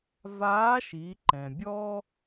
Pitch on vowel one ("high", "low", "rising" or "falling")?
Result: rising